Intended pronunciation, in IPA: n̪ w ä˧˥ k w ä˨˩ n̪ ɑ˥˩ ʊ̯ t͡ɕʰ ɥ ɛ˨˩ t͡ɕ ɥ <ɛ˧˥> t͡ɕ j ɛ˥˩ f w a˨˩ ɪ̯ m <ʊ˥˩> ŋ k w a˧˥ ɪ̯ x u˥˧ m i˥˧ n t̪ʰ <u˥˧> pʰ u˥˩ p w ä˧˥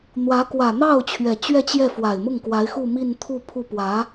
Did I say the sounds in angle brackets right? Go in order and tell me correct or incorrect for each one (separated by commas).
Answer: incorrect, correct, correct